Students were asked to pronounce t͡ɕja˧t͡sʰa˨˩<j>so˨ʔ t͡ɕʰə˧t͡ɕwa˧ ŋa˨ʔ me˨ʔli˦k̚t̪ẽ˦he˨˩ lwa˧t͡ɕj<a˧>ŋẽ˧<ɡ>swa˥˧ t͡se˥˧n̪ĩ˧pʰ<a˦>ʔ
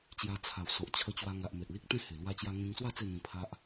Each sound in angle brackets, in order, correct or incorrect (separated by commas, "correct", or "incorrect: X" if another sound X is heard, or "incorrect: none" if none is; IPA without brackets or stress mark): incorrect: w, correct, incorrect: ŋ, correct